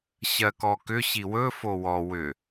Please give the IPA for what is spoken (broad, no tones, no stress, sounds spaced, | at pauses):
ɕ ɜ k ɔ k ʏ ɕ i w ɵ f o w ɔ w ʏ